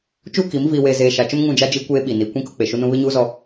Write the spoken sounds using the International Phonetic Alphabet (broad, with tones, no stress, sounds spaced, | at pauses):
t͡ʃ uː˦ k i˨˦ m v iː˨ w eː˨ z eː˨ ʃ a˨ t͡ʃ ʊ˦ m ŋ ũ˦˨ d͡ʒ a˦ d͡ʒ i˦ kʷ eː˦ ɓ i˨ n i˨ kʷ ĩ˦ k ʊ˦ k͡p e˨ ʃ u˦ n ũ˦ β ɪ˦ ɲ uː˦ z ɔ˦